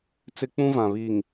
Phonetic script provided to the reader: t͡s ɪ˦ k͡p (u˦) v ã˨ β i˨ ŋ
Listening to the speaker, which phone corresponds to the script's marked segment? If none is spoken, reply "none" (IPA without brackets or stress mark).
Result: ũ˦